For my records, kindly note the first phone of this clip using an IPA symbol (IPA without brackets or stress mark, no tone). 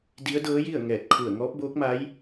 d